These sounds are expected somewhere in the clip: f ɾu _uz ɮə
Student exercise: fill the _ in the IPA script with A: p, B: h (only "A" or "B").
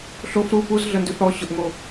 A